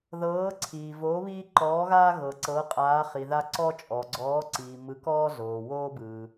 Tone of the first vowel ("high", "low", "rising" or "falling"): rising